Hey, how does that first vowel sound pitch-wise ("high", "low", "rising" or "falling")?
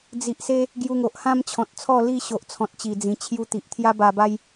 low